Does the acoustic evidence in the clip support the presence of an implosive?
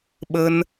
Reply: yes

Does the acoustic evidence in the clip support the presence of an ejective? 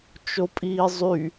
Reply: yes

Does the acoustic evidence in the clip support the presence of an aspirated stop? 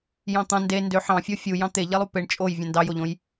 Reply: no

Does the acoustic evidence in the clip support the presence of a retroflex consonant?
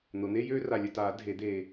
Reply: no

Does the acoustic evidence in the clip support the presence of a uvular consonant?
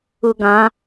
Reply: no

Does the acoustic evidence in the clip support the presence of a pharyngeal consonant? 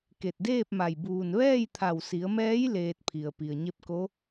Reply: no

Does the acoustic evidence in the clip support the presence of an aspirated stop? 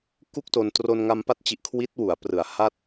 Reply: yes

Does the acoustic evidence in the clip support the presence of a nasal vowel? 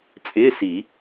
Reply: no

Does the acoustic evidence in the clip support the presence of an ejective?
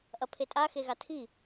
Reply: yes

